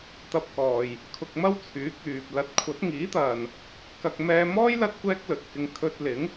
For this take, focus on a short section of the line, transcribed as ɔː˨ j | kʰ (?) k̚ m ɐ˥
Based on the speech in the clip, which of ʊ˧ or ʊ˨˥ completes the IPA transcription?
ʊ˧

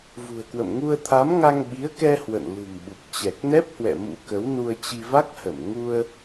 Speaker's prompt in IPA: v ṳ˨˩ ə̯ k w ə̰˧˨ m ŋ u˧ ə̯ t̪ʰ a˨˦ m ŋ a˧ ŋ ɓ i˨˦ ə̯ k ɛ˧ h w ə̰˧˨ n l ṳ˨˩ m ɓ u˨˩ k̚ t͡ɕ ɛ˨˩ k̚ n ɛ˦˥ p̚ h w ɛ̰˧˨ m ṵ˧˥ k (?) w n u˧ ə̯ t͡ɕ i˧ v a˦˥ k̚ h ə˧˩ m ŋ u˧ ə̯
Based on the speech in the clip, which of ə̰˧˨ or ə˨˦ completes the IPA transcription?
ə˨˦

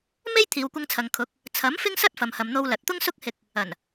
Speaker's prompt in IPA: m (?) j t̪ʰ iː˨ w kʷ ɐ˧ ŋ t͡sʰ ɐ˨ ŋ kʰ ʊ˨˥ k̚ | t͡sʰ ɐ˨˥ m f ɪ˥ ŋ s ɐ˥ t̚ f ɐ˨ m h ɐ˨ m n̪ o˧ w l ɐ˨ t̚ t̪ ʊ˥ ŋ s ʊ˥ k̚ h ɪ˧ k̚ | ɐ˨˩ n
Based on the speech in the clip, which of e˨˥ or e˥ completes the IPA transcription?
e˥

